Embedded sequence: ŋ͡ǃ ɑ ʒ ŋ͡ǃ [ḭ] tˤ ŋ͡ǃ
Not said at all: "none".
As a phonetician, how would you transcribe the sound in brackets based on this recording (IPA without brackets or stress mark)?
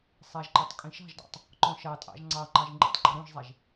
ḭ